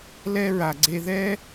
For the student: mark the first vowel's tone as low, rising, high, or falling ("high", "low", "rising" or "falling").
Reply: high